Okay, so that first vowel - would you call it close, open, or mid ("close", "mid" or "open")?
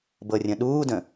mid